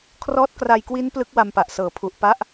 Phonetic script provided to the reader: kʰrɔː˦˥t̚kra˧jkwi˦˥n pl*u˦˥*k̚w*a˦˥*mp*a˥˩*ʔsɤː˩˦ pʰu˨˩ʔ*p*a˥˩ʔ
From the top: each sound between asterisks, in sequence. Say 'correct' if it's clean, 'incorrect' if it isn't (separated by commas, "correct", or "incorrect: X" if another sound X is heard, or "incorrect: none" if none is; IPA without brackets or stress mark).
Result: incorrect: ɯ˦˥, incorrect: a˧, incorrect: a˨˩, correct